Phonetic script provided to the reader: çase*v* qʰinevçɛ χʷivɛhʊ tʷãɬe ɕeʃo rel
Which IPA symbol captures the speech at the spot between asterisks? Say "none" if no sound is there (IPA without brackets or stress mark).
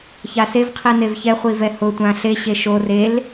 v